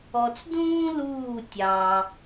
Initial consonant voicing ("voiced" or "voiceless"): voiceless